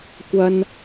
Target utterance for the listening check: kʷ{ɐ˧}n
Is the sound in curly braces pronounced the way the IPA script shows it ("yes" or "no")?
no